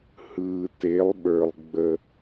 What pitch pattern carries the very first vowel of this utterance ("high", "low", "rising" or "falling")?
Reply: low